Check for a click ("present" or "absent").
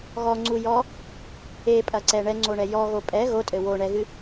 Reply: present